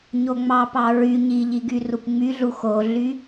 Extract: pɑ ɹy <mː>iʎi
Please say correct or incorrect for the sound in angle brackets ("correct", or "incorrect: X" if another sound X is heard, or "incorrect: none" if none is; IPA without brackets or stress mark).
incorrect: ɲ